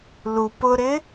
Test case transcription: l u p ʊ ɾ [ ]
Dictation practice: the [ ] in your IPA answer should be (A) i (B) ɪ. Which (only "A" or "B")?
B